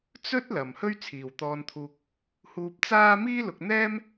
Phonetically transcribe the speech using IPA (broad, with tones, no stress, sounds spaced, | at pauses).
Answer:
t͡s ɵ˥ t̚ l ɐ˨ m h ɵ˥ ɥ t͡sʰ iː˨ w t̪ ɔː˧ n t̪ʰ uː˧ k̚ | h uː˧ p̚ t͡s aː˥ m iː˥ l ʊ˧ k̚ n̪ ɛː˥ m